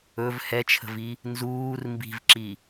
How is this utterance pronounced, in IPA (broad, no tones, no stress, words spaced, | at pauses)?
ɵv hɛt͡ʃʰə̤vi | nzuːr mbi̤vǁi